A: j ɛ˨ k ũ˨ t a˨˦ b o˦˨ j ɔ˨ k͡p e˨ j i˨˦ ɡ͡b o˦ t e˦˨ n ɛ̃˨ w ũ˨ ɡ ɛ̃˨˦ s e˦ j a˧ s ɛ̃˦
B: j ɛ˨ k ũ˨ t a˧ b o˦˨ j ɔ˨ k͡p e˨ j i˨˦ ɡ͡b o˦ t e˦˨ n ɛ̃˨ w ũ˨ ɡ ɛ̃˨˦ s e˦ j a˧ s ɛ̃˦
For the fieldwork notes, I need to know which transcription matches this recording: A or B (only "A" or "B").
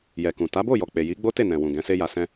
A